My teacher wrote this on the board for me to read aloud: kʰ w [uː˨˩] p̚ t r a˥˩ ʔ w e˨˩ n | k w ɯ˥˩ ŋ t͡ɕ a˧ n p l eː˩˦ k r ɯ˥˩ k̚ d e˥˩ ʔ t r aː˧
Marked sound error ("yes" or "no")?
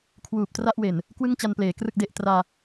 no